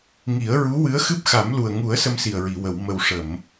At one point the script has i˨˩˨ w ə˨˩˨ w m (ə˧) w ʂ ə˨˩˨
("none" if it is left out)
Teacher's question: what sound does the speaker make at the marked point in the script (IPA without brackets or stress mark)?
ə˨˩